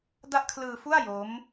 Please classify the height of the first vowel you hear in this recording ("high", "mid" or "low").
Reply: low